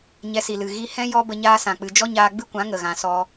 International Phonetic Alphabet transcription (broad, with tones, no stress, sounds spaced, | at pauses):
ɲ ɛ˧ s i˨ l ɨ˨ ɣ i˧ h ɛ̃˦ j ɔ˦ b ə˧ ɲ aː˦ s ã˨ k͡p ɨ˧ d͡ʒ ɔ˦ ɲ aː˧ ɡ͡b ɨ˦ kʷ ã˨˦ ŋ ə˨ ɣ ã˧ s ɔ˦